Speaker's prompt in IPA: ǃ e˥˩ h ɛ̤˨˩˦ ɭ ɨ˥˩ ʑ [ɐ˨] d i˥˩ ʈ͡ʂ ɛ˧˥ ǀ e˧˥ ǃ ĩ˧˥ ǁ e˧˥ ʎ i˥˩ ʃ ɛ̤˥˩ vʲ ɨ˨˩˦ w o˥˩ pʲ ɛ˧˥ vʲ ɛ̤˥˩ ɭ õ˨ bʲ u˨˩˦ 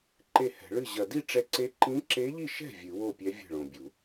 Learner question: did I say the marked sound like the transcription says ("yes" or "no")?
yes